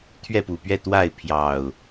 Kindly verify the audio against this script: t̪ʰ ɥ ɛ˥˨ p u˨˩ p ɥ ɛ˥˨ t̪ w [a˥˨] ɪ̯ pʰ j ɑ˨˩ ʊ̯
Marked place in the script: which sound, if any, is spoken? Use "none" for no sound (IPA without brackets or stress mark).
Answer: a˥˨